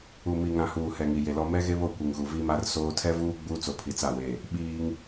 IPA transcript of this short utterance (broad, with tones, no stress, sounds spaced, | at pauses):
u˨ m i˨ ŋ ã˨ h uː˨ h ɛ˨ ŋ i˨ j e˨ l ɔ˦ m ɛ˦ ɣ e˦ β o˦˨ kʷ i˨ ŋ ɣ u˨ v i˦ m a˦ r s oː˦ tʰ ɛ˦ v uː˦ ɡ͡b uː˦ t͡s o˨ pʰ i˨ t͡s a˦˨ w e˦˨ | ɓ iː˦ ŋ